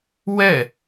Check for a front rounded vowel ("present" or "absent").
absent